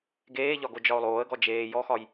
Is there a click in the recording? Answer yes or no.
no